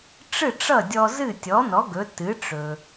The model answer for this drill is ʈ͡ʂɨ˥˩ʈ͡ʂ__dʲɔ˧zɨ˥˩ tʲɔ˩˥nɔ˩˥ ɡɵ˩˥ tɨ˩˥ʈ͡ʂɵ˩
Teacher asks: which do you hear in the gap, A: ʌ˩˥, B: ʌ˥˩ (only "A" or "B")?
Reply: B